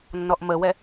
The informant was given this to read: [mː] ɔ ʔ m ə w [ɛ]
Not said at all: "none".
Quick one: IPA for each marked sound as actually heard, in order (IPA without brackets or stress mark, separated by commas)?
nː, ɛ